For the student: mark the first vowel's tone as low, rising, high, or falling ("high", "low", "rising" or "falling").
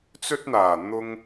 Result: high